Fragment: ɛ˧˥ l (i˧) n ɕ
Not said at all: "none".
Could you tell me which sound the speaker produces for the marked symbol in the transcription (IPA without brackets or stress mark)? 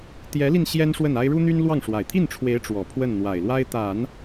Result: i˧